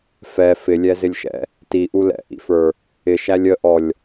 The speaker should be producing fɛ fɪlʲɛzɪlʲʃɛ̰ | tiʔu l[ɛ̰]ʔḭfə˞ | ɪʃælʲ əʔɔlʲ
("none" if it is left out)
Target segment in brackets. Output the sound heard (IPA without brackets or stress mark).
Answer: ɛ̰